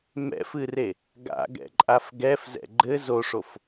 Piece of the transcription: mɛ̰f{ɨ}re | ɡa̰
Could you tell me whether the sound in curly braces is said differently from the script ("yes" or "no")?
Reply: no